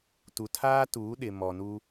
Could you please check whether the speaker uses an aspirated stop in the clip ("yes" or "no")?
yes